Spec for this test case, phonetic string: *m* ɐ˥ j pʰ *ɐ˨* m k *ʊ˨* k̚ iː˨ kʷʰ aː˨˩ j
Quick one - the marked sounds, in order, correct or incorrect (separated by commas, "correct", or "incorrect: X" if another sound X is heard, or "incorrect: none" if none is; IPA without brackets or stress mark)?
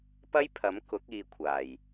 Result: incorrect: p, incorrect: ɐ˨˥, incorrect: ʊ˨˥